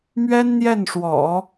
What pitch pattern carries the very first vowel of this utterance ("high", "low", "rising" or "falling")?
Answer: high